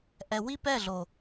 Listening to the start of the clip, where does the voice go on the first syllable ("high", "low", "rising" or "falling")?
low